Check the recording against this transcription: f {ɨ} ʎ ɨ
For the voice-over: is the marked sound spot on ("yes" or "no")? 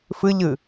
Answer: yes